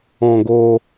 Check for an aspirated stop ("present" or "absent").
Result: absent